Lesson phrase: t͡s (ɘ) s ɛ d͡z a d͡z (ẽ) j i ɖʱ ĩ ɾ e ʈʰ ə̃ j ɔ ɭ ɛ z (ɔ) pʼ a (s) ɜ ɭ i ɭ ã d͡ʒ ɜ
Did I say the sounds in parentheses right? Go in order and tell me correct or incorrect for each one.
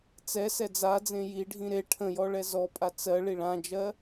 incorrect, correct, correct, incorrect

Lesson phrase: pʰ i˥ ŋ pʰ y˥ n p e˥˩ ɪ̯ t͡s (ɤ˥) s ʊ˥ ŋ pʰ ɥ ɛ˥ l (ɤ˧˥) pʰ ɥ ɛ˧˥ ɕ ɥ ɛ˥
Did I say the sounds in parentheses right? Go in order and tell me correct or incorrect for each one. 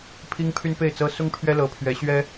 correct, correct

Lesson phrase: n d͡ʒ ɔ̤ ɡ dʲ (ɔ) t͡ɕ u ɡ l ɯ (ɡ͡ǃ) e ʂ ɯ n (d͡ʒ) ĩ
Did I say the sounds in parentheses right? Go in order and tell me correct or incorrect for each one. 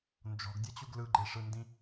incorrect, correct, incorrect

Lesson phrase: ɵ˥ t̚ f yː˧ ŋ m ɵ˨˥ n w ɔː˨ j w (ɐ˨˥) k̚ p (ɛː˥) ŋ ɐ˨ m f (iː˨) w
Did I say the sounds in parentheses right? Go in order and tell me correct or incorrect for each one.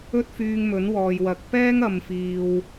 correct, correct, correct

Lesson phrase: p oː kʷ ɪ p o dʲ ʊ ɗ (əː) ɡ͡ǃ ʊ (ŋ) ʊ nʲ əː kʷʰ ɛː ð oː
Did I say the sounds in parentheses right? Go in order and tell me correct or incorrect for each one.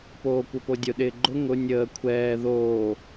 incorrect, correct

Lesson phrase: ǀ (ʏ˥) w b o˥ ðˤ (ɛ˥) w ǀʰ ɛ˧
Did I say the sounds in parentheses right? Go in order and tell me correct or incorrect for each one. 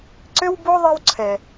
correct, correct

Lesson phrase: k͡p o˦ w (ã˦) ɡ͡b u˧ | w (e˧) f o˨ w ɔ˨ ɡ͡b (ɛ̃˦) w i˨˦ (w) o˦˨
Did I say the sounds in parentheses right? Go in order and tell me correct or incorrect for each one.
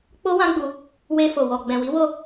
correct, correct, incorrect, correct

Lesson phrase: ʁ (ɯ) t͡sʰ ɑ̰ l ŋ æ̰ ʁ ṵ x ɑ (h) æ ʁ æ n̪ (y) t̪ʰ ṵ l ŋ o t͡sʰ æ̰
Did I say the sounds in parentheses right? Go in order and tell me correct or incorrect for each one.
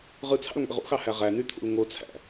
correct, correct, correct

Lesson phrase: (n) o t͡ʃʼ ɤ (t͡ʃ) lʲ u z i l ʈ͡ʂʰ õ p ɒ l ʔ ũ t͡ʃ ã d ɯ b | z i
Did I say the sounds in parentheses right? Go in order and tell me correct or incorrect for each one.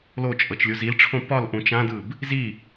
incorrect, correct

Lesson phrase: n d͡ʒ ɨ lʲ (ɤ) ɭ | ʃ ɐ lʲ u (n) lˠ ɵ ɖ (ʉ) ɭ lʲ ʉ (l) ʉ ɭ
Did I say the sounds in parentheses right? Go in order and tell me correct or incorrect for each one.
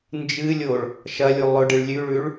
incorrect, incorrect, incorrect, incorrect

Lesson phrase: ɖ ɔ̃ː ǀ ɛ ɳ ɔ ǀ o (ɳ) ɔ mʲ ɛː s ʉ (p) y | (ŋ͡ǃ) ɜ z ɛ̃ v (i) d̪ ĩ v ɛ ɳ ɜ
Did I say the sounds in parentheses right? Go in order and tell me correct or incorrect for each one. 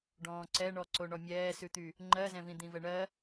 correct, incorrect, correct, incorrect

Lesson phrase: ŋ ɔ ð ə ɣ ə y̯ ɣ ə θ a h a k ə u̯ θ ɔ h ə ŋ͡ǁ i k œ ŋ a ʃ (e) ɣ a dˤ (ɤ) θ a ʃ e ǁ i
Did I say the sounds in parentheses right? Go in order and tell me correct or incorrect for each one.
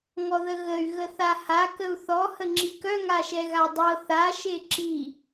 incorrect, correct

